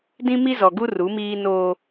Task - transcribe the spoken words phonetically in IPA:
d ĩ˦ m i˦ z ɔ˨ ɡ u˦ r u˨˦ m iː˦ n oː˦

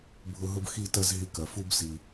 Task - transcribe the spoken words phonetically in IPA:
bʱ ʊ˧ ɦ ʊ˦ b x i˦˨ t ɐ˦ z ɦ i˧ k ɐ˨ f u˦ b s i˨

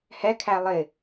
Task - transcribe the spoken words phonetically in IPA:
h ɛ kʰ æ lˠ ɪ

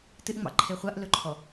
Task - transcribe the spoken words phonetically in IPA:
t ɨ ʔ ŋ͡m ɑ̰ ǃʰ e χʷ a ʔ l ɵ ǃʰ ɔ

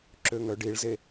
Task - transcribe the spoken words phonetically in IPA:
ǁ ø ŋ œ ɖ i ɭ z e

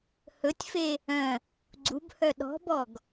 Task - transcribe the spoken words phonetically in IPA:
h ɵ tʲ f e | œ̃ | ɡ͡ǀ u b h œ ɗ ɔ̤ b ɔ ɡ

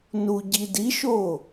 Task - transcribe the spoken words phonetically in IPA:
n u ɟ i d i ʃ o

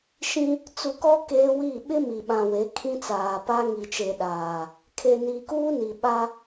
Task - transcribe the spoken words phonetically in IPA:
ʃ ĩ˦ | t͡s u˨ k ɔ˦ k eː˦ w i˦˨ ɓ ɪ˦ m i˨ ɓ ã˨ w e˨˦ kʰ ĩ˦ t͡s aː˨ p a˦ ŋ i˨ t͡ʃ e˨ ɗ aː˨ | kʰ e˨ n iː˨ k uː˦ n i˨ ɓ a˦

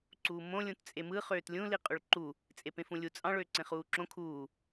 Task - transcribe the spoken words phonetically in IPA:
ǀ uː m õ lʲ ũ t t͡sʼ e m ɯ χ øː t lʲ ũ l i qʼ y ɭ ǃ u | t͡sʼ e p ẽ f ũ lʲ u t͡sʼ ɑ̃ ɭ øː ǀ ẽ χ uː ǁ õ kʰ uː

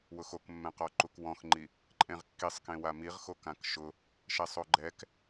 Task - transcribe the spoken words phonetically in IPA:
w ʊ x o k mː ɛ̃ q ɔ ǃ u k w ɔ̃ x ŋ͡ǃ i | ǃʼ ẽ ʁ kː i sˤ k ẽ w a m i ʁ x o k ã k ʃ ʊ | ʃ ɛ sˤ o ɡ͡ǃ ɛ k

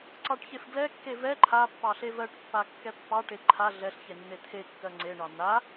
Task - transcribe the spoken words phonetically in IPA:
ǀ ɑ ʈ ç e f ɡ l ɛ kː e v ɛ ǃʰ a pː ɑ ɬ e v ɜ ʈ pː a kː ɛ pː ɑ ʈ e ǃʰ a ɮ ɛ ɬ ç e nː e t̪ʰ e kː ɜ ŋ͡ǀ e ɳ ɑ n̪ a

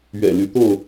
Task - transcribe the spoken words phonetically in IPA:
ɥ ɛ̰˨˩ l y˨˦ t̪ o˥˨ ʊ̯

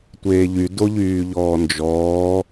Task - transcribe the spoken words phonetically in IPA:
tʷ eː ʎ y d o ʎ yː ʎ ɔː n d͡ʒ ɔː

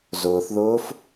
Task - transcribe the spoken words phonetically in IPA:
z ʊː θ ð ʊː f

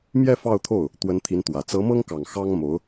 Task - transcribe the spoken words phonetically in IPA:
m j ɛ˥˧ f ɑ˥˧ ʊ̯ t̪ʰ o˥˩ ʊ̯ | t̪ w ə˧˥ n t̪ʰ i˧˥ n t̪ w ä˨˩ t͡s ɤ˧˥ m ɤ˥ ŋ k ɑ˨˩ ŋ x ɑ˥ ŋ m o˧˥ ʊ̯

